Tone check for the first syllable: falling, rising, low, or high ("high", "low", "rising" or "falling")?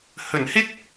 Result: low